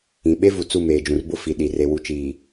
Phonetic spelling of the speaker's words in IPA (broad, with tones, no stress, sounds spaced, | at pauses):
ĩ˨ ɓ e˦ v u˨ t͡s u˦˨ m eː˨ d͡ʒ ũ˨ r b ʊ˦ f i˨ ɗ i˨ r e˨ w u˨ t͡ʃ iː˨